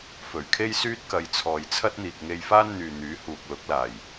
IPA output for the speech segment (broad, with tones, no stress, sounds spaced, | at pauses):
f ɵ˨˩ ɥ kʰ e˥ j s yː˥ t̚ k ɐ˧ j t͡sʰ ɔː˨ j t͡sʰ ɐ˥ t̚ n̪ iː˨ k̚ ŋ e˧ j f aː˥ n n̪ yː˨ n̪ yː˨˥ h uː˨ k̚ l ʊ˨˥ k̚ l aː˨˩ j